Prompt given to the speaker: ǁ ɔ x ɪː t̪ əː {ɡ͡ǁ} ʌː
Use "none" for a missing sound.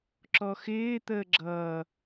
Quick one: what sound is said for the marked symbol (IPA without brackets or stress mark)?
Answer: ɡ͡ǁ